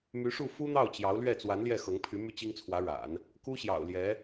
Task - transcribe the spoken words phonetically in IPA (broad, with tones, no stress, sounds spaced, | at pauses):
m y˧˥ ʂ u˥˩ f u˥ n̪ ɑ˥˩ ʊ̯ t͡ɕ j ɑ˧˥ ʊ̯ l ɥ ɛ˥˩ t͡s w a˧˥ n l j ɛ˥˩ x ɤ˧˥ ŋ pʰ y˧˥ m y˥ t͡ɕ i˥ ŋ t͡sʰ w ä˧˥ ɻ a̰˨˩˦ n | k u˥ ɕ j ɑ̰˨˩ ʊ̯ l j ɛ˧˥